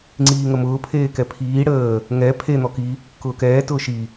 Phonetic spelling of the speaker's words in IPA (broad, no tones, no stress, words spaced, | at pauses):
ŋ͡ǀiːŋəmʊː pʰeːkɛpʰiː ɽəː | ŋɛ pʰe n̪ɔki | kʊːkɛː tʊːʃi